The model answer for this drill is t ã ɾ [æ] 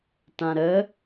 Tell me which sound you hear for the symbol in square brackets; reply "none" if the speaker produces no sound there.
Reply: ə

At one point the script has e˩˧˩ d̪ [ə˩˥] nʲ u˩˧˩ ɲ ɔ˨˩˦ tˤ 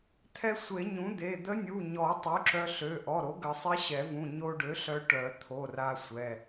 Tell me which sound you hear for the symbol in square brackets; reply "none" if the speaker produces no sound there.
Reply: ə˧˥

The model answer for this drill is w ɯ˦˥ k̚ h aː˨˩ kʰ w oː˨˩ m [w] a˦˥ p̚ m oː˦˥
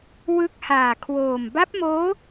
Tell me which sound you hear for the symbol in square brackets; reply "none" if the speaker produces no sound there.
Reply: b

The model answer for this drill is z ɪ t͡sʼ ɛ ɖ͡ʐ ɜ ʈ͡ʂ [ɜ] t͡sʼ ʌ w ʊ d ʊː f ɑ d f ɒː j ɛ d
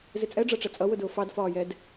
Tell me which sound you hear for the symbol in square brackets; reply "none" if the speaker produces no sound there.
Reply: ɛ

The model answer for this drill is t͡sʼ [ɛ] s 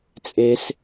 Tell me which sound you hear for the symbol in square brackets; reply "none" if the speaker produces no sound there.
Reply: e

